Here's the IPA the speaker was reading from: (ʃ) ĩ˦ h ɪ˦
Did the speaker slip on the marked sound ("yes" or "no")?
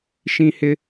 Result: no